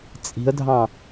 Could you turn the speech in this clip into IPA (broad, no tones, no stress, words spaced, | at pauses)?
t͡sʼi̤ə̯dʱɑ̃